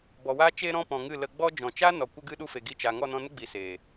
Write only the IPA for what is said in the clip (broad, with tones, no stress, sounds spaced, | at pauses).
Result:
b ɔ˨ w a˧ t͡ʃ eː˧ ɾ ɔ̃˧ p ɔ̃˨ ŋ ɨ˦˨ l ə˧ ɡ͡b ɔ˦ d͡ʒ ɔ̃˨ t͡ʃ a˦ n ɔ˨ kʷ ə˧ ɡ ɨ˧ ɗ u˧ f e˨ ɡ i˧ t͡ʃ a˨ ŋ ɔ˦˨ n ɔ̃˧ n ə˦ ɡ͡b i˨ s eː˨